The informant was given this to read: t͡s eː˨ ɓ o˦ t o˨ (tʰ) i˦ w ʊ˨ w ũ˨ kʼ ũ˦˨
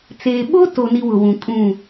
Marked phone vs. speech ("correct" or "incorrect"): incorrect